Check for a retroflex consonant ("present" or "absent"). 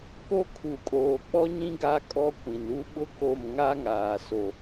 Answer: absent